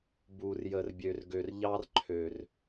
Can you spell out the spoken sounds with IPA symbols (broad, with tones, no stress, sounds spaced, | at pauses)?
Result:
b u˨ r j ə˨ r bʲ ø˨ r ɡ ø˨ r ʎ ɑ˦ r ǃʰ ø˨ r